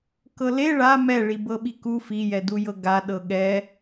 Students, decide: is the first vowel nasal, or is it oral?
oral